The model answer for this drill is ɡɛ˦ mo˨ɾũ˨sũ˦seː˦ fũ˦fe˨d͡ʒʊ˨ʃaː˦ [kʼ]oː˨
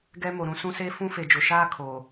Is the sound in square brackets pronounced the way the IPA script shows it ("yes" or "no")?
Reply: no